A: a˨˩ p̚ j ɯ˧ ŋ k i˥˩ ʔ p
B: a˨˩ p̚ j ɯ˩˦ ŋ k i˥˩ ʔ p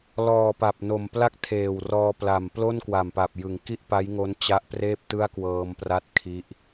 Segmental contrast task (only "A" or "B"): B